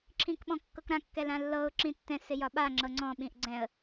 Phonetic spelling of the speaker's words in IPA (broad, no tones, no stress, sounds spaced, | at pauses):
ǁʰ ĩ k ɓ ɔ̃ kː ɤ k ɾ ã kː ɛ l ã lː ɤ ʊ̯ ǁ ĩ tː ɛ̃ s ɪ j ɒ ɓ a ŋ͡ǁ ɤ ŋ͡ǀ ɔ̃ ɓ ĩ ʔ ɡ͡ǀ ɛ̃ ə̯